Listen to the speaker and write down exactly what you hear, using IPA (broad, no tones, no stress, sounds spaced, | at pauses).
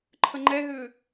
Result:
ǃʰ ə ŋ͡ǃ ɛ ɦ ʏː